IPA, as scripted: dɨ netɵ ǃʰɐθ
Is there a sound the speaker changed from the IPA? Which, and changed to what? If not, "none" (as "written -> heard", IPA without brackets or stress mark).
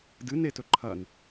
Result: θ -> n